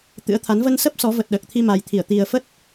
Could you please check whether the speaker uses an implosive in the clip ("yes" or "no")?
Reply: yes